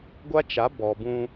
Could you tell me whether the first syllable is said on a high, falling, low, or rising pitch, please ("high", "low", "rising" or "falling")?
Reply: high